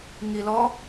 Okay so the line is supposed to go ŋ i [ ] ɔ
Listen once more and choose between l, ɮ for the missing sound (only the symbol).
l